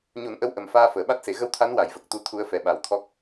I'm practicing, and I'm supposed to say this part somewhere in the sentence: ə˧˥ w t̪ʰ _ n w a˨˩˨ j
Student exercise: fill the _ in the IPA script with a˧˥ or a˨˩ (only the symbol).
a˧˥